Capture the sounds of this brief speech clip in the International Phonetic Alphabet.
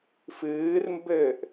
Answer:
f ɨː r m b ɘː ʔ

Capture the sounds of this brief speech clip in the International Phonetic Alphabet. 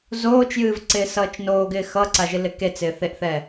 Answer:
z oː t͡ʃ j ɨː v ǀ ɪː s ʌː t͡ʃ n oː ɡ ɪː x ʌ ǀ a ʒ ɨ l ɪ k e t͡s ɪː θ e ʔ θ ɛː

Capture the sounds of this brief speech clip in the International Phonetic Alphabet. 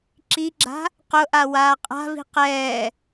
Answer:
ǁ i ɡ͡ǁ a̤ | q ʊ ʔ a w aː qʼ a̤ v i̤ q ɛː

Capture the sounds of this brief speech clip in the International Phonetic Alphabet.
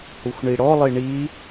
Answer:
h u xʷ ɳ i ɽ ɔ lˠ i ɳ i

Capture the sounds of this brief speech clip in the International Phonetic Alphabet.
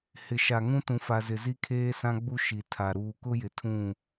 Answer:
h ɪ˨ ʃ a˨ ŋ ũ˦ t ũ˨ f a˨ z ɪ˨ z i˦ kʰ eː˦ s ã˦ ɡ͡b u˦ ʃ i˨ tʰ a˨ ɾ uː˨ k ʊ˦ j ɪ˨ tʰ ũ˦˨

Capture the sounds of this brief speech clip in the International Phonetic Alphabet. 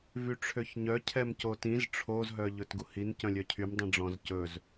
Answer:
v y ʈ͡ʂʰ ø ç ɲ œ cʰ ɛ m c o t ĩ z ʈ͡ʂʰ o z ɦ œ ʎ ɵ t ɡ u h i n c œ̃ lʲ œ cʰ y m dˤ ĩ ɖ͡ʐ ɔ̃ z c ɵ z

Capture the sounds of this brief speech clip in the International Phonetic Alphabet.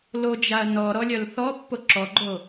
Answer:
l o d͡ʒ a ɐ̯ n ɔ ɾ ɔ lʲ œ l θ ɔ pː o ǁ ɔ ɡ͡ǃ o

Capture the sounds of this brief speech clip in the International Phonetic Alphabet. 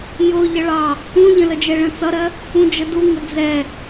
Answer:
j ʊ ʎ ʌ ɭ ɑ | ũ ʎ ə̃ l ə d͡ʒ ɛ ɭ ə̃ t͡s ʌ ɾ ɜ | ũ d͡ʒ ə d u ŋ ə d͡z ɛ

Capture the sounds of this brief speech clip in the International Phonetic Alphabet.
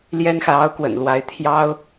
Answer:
l j ɛ˥ n x ä˨ ɑ˥ ʊ̯ k w ə̰˨˩ n l w a˧˥ ɪ̯ t̪ʰ j ɑ˥ ʊ̯

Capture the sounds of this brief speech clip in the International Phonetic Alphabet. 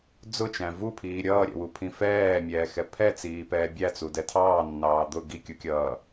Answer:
d͡z ʊ t͡ʃ æ̃ v u pʰ iː ɾʲ ʌː ɾʲ ɛ̰ w u pʰ ĩ f ɛː mʲ ɛː x ɛ pʰ ɛ t͡s iː p ɛː bʲ æ t͡s u d ɛ tʰ ɑː nː ɑː d̪ ʊ ɡ i kʲ u kʲ ʌː

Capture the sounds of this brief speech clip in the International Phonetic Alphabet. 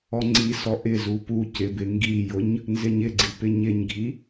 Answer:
ɔ ŋ͡ǀ i s ɔ ʔ ɪ z u p u c ɪ b ɪ ŋ ɡ i j ʊ ɲ | n z ɪ ɲ ɪ ɡ͡ǀ i p ɪ ɲ ɪ ɲ ɡʱ i

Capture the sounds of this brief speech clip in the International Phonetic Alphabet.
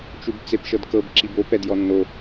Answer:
t͡ʃ u b t͡s e p ʃ ɤ d k ɤ b ǁ i b o p ɛ d j ɔ nː o

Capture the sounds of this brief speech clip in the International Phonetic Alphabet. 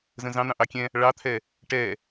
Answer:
z ə̃ z ɑ̃ n̪ ɑ̃ ʔ ɑ kʲ ɛ̃ | ɭ ɑ t̪ʰ ɛ | ʈ ɛ

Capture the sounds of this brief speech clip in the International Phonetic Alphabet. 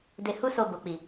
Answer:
d e˧ h u˦ s o˧ b o˨ k͡p i˨

